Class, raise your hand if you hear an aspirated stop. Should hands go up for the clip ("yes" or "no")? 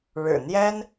no